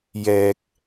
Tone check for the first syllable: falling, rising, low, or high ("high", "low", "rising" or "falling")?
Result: low